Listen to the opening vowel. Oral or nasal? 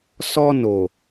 oral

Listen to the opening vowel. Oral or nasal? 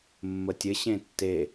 oral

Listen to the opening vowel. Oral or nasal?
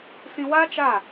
nasal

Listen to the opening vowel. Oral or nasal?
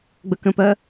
oral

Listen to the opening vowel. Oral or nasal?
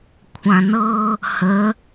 nasal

